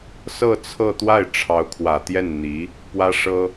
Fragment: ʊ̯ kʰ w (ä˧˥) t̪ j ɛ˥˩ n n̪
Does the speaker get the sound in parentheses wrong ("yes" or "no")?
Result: yes